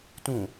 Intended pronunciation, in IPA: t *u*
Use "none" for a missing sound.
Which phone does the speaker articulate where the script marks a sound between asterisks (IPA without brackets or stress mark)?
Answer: ũ